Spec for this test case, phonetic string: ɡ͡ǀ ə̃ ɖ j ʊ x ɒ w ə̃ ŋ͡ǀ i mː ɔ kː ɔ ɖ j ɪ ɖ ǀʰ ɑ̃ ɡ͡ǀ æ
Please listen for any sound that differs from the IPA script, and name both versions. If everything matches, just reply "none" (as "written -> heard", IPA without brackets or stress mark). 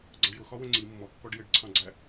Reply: none